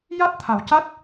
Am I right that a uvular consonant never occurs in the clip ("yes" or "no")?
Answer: yes